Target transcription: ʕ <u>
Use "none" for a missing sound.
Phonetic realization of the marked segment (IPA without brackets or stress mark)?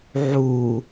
u